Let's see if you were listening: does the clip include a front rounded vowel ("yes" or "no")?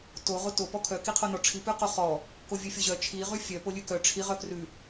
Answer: yes